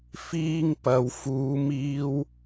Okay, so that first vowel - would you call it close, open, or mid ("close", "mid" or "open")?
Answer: close